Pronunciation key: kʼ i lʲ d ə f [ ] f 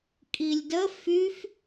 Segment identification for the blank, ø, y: y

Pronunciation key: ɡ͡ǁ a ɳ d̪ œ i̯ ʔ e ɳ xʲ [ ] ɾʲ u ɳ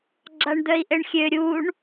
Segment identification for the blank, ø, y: ø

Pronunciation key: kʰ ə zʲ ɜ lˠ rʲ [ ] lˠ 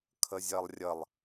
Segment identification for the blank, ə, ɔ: ə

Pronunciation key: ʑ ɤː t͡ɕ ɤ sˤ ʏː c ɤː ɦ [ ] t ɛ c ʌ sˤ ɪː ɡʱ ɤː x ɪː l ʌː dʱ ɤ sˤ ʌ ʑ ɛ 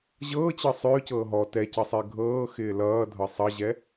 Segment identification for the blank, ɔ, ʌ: ɔ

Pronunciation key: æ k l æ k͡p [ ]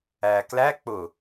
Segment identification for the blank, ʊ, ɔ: ʊ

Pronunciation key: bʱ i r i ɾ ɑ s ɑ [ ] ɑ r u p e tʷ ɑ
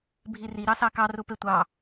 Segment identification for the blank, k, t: k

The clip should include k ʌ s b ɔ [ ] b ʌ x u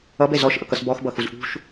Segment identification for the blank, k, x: x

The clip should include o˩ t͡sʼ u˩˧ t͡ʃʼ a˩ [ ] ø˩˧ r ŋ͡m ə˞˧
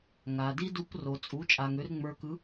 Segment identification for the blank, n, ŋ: ŋ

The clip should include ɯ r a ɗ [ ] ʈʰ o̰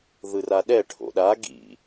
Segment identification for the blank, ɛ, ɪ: ɛ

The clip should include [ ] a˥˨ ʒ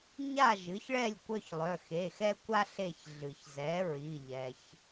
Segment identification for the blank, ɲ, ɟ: ɲ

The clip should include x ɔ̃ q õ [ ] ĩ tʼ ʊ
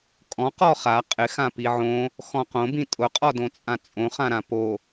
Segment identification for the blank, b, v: b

